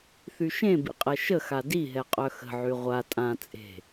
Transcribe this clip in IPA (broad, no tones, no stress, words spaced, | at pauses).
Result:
θyʃẽbḭ qʼɛʃəxa diɦɛ qʼœxə̤ʕy ʁʷa tʼã t͡sʼe̤